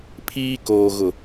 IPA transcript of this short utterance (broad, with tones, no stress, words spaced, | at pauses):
pʰiː˦koː˨ ɣʊ˨